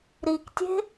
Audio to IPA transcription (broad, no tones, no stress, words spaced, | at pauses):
ɾiktʲe̤